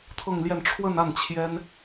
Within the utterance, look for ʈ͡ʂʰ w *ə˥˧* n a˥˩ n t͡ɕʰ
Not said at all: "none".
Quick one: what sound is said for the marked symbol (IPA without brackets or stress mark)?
ə˥˧